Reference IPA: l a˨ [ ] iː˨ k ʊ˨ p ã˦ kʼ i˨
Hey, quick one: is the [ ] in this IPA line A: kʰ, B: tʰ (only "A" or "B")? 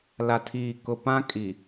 B